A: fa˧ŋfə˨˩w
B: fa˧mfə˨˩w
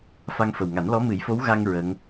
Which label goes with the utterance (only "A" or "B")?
A